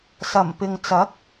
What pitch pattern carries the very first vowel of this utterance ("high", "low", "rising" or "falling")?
low